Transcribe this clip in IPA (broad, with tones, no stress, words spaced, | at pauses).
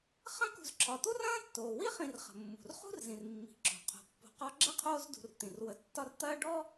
χɐ̃˦kṳ˨zǁʰɒ˩ t̪u˥rɐ̃ː˥tːoː˩ wi˥χĩ˨r χə̤˩mːṳ˩r χṳ˥rzĩ˩rmːi̤˩ǁo̤˩ qʰo̤˩pːo̤˨qɒ˦ ɡ͡ǁə˥qʰoː˦zdṳ˨r t̪ĩ˩rwə˨tːɒ˦rt̪ɐː˥ ɖɔ˥